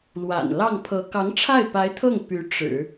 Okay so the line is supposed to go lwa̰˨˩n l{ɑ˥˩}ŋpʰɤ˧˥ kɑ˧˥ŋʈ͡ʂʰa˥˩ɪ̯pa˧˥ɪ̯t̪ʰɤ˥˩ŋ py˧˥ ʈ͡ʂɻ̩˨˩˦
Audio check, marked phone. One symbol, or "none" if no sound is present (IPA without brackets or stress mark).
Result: ɑ˥˩